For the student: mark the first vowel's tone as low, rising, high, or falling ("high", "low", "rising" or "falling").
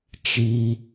high